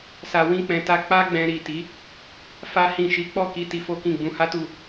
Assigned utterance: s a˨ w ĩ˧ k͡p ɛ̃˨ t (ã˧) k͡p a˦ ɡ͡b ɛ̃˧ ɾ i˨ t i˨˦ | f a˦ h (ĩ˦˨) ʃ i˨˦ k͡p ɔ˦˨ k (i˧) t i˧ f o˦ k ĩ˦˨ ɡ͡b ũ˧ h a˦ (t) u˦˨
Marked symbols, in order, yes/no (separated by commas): no, yes, yes, yes